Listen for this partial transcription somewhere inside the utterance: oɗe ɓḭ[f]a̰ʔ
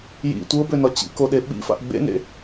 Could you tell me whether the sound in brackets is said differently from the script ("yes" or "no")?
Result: no